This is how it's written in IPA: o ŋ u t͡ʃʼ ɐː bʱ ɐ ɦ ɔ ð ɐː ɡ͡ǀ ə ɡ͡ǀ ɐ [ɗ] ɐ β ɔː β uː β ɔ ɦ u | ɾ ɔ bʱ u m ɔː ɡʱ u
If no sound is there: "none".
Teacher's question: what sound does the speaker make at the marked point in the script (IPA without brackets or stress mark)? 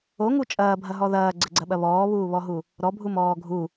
ɓ